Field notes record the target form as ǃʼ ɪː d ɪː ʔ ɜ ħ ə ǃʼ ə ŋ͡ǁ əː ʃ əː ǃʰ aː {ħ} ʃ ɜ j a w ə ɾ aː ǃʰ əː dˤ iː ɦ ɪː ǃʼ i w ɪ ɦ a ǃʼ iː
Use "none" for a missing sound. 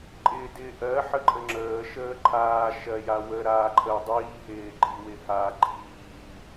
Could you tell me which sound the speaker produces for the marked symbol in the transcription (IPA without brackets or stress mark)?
none